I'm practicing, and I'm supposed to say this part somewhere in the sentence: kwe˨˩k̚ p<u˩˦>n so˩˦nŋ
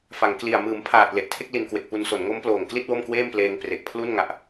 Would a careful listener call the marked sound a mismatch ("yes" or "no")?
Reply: yes